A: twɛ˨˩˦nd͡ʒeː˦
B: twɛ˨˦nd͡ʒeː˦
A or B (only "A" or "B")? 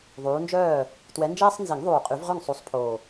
B